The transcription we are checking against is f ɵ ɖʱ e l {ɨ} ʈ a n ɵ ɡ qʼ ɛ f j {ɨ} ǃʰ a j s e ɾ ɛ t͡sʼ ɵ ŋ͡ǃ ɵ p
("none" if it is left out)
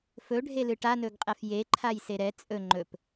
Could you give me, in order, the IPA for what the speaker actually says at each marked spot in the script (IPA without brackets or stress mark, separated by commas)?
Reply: ɨ, e